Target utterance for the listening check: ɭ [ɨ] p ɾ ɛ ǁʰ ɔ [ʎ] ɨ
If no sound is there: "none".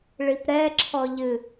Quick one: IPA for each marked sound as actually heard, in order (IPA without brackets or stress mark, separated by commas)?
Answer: i, ʎ